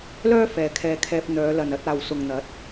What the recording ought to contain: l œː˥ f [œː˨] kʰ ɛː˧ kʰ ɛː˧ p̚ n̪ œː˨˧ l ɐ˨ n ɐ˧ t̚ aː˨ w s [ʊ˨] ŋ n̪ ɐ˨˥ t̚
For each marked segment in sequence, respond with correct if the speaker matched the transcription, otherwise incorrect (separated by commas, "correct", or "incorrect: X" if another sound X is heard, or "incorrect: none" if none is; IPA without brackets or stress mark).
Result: incorrect: ɛː˨, correct